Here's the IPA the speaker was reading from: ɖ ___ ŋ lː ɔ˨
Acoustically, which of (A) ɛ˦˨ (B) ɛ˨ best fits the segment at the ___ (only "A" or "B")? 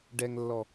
B